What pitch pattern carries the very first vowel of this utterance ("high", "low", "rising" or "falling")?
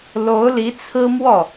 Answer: rising